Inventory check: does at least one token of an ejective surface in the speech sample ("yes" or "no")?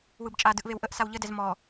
yes